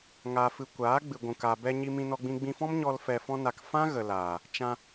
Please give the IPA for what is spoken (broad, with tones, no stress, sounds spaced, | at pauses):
ŋ a˨ f ɨ˨ kʷ aː˨˦ ɡ͡b ɨ˨ ɡʷ ũ˨ k a˨ b ɛ˧ ɲ i˧ m ĩ˧ n ɔ˧ ɡ͡b ĩ˧ ɡ͡b ĩ˧ f ɔ̃˦ m ɲ ɔ˧ l f ɛ˧ f ɔ̃˦ n a˧ k f ã˦ ɣ ə˨ l aː˨ | t͡ʃ ã˧